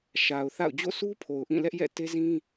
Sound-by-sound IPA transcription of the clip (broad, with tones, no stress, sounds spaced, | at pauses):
ʃ a˨ ʊ̯ θ a̰˦˨ ʊ̯ d͡ʑ o̰˦˨ sʰ u˦ pʰ o˨ ʊ̯ ʔ ĩ˦˨ l ɛ˦ ʔ j ɛ̰˦˨ t e˦ z ĩ˦